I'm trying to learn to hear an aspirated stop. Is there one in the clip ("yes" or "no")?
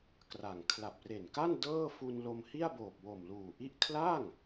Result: yes